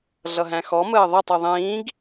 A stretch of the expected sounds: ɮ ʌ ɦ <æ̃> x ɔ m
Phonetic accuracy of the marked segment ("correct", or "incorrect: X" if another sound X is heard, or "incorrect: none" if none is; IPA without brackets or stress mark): correct